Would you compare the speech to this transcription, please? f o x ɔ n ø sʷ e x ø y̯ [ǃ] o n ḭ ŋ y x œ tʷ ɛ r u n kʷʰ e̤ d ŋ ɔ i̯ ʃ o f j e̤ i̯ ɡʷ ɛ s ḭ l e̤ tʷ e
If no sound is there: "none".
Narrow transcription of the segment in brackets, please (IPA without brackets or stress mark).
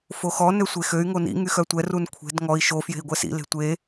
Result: ŋ